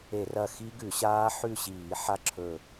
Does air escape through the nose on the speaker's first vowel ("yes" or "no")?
no